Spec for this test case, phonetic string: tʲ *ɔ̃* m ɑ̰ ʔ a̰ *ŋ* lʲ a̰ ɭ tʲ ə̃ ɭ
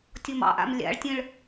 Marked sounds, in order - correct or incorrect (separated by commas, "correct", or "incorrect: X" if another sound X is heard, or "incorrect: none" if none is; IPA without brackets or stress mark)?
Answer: incorrect: ɔ, incorrect: m